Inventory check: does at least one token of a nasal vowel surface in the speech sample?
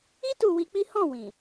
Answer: yes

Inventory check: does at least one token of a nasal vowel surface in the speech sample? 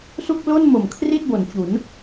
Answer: no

